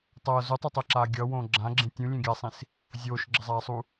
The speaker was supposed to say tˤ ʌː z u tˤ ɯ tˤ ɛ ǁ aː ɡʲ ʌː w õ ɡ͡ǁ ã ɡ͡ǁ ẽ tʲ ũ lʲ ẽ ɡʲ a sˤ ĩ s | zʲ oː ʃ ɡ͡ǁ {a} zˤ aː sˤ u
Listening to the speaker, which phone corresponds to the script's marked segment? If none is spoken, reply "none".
ʌ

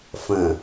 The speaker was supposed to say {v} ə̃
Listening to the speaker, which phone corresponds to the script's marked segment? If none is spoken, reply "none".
f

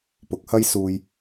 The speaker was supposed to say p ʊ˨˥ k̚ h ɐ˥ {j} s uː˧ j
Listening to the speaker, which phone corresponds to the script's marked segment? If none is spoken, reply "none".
j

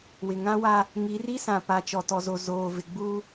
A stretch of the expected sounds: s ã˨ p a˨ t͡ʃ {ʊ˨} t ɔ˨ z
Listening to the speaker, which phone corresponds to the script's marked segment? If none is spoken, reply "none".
ɔ˨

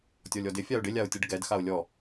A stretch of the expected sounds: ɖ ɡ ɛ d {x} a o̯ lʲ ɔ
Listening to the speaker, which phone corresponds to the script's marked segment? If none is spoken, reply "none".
x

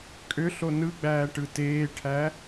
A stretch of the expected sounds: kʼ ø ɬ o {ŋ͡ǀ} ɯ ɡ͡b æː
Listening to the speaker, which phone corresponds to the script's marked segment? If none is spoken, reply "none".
n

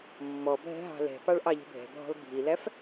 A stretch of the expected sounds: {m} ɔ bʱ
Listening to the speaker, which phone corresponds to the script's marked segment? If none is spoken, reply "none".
mː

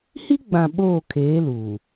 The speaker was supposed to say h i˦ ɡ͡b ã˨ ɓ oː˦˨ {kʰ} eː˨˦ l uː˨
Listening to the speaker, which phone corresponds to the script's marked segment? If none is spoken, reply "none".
kʰ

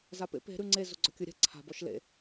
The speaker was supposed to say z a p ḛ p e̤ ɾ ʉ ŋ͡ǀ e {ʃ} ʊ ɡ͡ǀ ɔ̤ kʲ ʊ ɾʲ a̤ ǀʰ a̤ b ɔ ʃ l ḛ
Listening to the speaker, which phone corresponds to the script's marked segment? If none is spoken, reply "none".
z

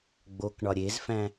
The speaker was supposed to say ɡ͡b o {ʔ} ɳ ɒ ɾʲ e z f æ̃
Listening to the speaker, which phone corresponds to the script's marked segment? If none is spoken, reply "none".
k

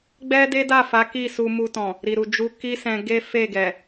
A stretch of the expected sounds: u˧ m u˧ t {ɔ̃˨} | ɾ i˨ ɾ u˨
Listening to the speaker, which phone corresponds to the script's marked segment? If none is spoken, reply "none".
ɔ̃˨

